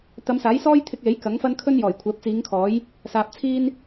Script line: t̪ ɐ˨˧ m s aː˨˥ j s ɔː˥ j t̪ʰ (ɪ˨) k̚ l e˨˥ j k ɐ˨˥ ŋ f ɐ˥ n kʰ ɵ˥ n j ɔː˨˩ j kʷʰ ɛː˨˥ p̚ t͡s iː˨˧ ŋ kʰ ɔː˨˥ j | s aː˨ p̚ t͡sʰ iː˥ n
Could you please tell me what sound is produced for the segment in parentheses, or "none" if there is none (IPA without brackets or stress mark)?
ɪ˧